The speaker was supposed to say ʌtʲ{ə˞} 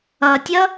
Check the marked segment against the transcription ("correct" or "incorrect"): incorrect